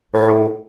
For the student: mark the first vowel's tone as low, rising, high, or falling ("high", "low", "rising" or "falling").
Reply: high